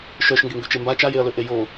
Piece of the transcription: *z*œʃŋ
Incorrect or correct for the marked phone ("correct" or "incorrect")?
incorrect